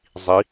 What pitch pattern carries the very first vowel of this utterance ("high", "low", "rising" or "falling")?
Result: rising